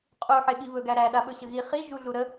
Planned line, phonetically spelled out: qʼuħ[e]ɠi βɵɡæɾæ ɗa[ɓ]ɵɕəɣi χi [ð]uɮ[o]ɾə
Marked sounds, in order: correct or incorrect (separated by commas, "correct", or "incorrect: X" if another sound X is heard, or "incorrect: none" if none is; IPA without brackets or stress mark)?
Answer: correct, correct, incorrect: ʒ, incorrect: u